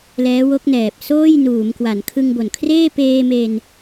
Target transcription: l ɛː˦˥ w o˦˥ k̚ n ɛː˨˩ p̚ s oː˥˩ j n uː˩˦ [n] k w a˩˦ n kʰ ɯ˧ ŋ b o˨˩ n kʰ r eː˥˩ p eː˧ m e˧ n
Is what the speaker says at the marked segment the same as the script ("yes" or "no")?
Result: no